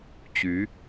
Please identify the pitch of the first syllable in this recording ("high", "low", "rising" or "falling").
rising